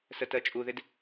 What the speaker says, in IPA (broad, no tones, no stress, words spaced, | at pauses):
sətɜt͡ʃʼuðɪd